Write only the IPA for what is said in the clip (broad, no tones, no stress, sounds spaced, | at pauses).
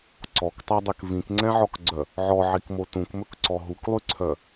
ǀ ɔ k tˤ æ dˤ ɛ k v ĩ k ŋ͡ǀ ɛ̃ ʕ ɔ k ɡ͡ǀ œ | ʕ ɔ ʕ i k m o t ũ k m ɵ k ǀ ɔ ɦ u k lˠ y ǀʰ œ